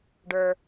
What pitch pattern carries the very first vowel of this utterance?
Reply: high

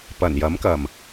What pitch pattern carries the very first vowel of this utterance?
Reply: low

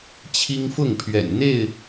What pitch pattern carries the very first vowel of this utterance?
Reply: high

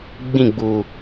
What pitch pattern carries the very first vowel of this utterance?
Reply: falling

